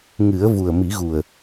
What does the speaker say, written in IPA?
ŋ ɨ˨˩˦ ə̯ v u˨˩ ə̯ m i˨˩˦ ɣ u˨˩ ə̯

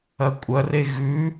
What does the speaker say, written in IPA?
ɐ kʷʼ ɐ r e ɣ ʉ

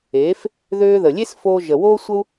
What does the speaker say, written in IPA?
eː˨˦ f | ð øː˧ ð ə˨ lʲ e˦ s f oː˧ ʒ ə˨ w oː˦ sʷ ə˦ u̯

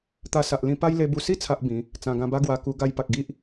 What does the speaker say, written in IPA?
t̪ a˧ s a˨ ʔ l ĩ˧ p a˦ j l e˧ b u˧ s i˥˧ t͡sʰ a˦ ʔ b ĩ˨˦ | t͡s ã˨˩ ɡ ã˧ b a˦ ɡ w a˧ k u˧ ɡ a˧ j p a˨ k̚ ɡ i˦ ʔ

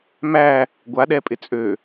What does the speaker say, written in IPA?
m æ | ɡʷ a ɗ ɛ pʼ ɪ t͡sʼ ø

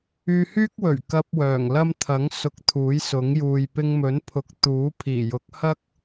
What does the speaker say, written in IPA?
yː˧ h yː˥ k̚ w ɵ˨˩ ɥ k ɐ˧ p̚ w œː˨˩ ŋ l ɐ˥ m t̪ʰ ɐ˨˥ ŋ s ʊ˨˥ k̚ t̪ʰ uː˨˥ j s ʊ˨˥ ŋ j uː˨ j p ɪ˧ ŋ m ɵ˨˥ n pʰ ʊ˨˥ k̚ t̪ uː˨˥ pʰ iː˨˩ j ʊ˨˥ k̚ h ɐ˥ k̚

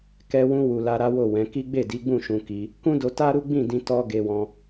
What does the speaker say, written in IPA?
k ɛ˧ w ũ˧ w u˨ l a˧ ɾ a˦ w o˦˨ w ɛ̃˨˦ k i˦ ɡ͡b e˦˨ d i˨˦ ɡ͡b ũ˦˨ ʃ ũ˧ k i˧ | k ũ˦ d o˧ t a˦ ɾ u˦ ɡ͡b ĩ˦˨ d ĩ˧ t ɔ˦ ɡ e˧ w ɔ̃˧

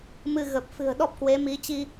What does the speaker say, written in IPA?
m ɨ˧ ɣ ə˨˩ p̚ f ɨ̤˨˩ ə̯ ɗ ɔ˦˥ p̚ k w e˨˦ m i˨˦ t͡ɕ i˧

